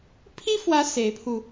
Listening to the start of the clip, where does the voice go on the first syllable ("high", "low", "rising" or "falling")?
high